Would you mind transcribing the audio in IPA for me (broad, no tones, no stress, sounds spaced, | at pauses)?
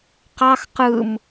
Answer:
q ɑ x q ɯ m